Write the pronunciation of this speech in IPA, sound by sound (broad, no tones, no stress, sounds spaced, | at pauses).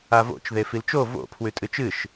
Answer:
a v o̰ t͡ʃ ð e f i l t͡ʃ o v o̰ pʰ w ʉ tʼ ɨ t͡ʃ ɨ ʃ